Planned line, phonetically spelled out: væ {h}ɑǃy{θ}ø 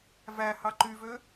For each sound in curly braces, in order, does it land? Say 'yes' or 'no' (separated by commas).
yes, no